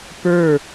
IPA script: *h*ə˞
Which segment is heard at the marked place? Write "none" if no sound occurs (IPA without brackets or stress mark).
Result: p